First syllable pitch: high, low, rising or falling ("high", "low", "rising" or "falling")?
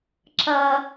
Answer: high